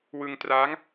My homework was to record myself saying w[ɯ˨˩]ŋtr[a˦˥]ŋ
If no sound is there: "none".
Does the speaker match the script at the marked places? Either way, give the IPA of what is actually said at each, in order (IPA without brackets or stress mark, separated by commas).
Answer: ɯ˧, aː˦˥